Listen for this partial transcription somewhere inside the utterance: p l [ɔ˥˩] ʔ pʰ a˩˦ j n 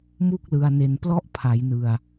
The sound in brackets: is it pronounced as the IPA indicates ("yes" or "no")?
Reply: yes